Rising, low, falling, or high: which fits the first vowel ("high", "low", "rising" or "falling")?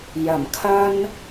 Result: low